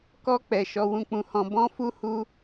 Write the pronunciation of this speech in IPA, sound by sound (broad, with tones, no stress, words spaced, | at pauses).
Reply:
kɔ˦ k͡pɛ˧ʃɔ˦wũ˦ k͡pũ˧hɔ̃˧ bɔ̃˦fu˦hu˦